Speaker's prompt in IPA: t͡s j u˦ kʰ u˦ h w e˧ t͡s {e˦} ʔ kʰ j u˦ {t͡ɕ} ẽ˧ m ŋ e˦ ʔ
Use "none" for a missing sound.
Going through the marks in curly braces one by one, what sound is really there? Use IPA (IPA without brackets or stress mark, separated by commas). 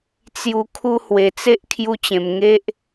e˦, t͡ɕ